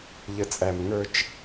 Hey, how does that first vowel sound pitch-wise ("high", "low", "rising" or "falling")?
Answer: low